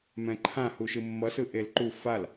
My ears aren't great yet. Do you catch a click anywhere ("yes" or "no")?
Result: yes